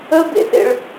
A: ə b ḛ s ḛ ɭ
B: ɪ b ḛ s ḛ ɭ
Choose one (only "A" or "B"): A